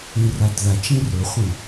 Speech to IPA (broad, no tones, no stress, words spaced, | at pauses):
ĩradðat͡ʃĩ rɵχʷĩ